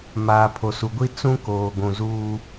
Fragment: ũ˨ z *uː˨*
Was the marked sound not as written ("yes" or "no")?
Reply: yes